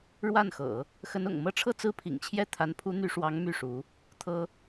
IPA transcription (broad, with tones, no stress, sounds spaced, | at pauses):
ɻ w a˥˩ n x ɤ̰˨˩˦ | x ə˧˥ n ʊ̰˨˩ ŋ m ɤ˥ ʈ͡ʂʰ ɤ˥˩ t͡s ɹ̩˥ pʰ ḭ˨˩ ŋ t͡ɕʰ j ɛ˥˩ t̪ʰ a˧˥ n pʰ u˧˥ n̪ y˧˥ ʂ w ɑ˧˥ ŋ m y˥˩ ʂ u˧˥ | t̪ʰ ɤ˥